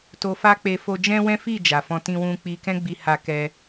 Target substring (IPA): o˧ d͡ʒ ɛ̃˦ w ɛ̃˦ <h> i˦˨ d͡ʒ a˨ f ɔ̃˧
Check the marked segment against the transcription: incorrect: f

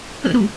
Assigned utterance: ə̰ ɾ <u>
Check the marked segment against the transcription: correct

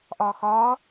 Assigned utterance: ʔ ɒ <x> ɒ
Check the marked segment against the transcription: correct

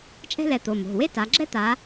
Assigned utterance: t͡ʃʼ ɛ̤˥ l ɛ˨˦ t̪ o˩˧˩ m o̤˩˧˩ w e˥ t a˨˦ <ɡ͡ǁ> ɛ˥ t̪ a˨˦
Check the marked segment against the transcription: correct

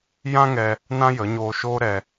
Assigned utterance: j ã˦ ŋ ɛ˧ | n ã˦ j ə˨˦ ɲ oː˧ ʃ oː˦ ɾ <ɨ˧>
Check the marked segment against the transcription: incorrect: ɛ˧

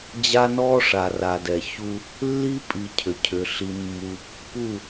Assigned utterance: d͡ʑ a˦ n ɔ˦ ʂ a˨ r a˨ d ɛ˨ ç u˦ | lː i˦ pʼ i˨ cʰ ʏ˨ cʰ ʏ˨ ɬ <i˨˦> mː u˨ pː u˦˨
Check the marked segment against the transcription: incorrect: i˨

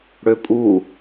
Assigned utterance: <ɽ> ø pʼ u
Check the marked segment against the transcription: correct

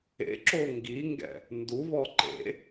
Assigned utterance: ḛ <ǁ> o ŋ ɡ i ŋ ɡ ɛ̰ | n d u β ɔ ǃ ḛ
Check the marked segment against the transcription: correct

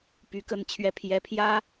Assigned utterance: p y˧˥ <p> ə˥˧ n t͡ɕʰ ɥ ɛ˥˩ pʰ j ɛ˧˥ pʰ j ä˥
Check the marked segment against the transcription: incorrect: k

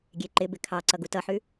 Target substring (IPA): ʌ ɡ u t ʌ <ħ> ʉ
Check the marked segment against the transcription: correct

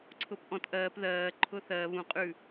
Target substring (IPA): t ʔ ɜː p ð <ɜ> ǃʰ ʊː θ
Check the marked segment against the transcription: incorrect: ɜː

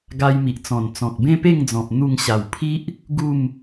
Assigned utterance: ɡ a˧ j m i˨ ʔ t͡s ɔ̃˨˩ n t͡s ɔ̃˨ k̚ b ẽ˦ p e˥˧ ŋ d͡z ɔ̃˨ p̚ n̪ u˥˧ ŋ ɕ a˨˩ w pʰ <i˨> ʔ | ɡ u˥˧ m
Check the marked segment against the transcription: incorrect: i˦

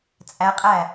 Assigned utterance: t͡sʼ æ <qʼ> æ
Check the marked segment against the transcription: correct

